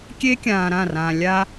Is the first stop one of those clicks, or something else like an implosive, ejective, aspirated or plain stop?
plain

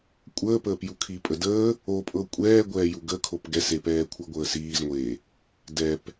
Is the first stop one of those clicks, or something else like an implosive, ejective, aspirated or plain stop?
ejective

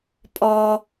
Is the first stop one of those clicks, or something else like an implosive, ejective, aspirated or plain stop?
ejective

